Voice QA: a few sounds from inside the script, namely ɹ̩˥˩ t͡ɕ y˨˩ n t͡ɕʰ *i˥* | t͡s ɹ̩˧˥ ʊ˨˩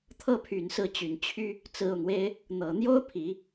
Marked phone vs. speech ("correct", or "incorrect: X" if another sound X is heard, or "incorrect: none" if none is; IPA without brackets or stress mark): incorrect: y˥